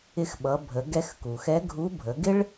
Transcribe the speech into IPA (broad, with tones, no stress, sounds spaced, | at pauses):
ɪ˧ x ɓ ʌ˩˧ bʱ ə˩˧ ɡ ɛ˧ x k u˩ x ɛ˧˥ ɡʱ u˧˥ bʱ ə˩˧ ɡ ɪ˥ ɭ